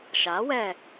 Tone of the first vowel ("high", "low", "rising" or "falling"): rising